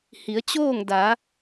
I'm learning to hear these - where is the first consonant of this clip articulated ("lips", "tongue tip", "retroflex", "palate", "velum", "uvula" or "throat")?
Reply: throat